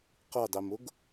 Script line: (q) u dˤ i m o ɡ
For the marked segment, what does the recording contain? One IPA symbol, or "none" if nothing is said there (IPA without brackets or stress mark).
q